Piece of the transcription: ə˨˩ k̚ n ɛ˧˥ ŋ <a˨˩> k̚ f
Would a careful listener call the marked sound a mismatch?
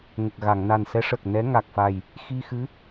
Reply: no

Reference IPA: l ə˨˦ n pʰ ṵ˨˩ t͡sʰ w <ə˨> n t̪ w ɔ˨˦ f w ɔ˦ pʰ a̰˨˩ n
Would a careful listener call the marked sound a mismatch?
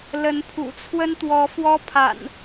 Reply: yes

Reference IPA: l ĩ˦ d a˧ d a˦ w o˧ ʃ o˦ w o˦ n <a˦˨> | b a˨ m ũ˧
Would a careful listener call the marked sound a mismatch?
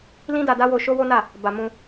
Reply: no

